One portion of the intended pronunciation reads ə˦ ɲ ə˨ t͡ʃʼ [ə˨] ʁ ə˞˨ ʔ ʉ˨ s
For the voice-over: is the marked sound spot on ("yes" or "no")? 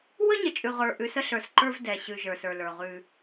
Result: no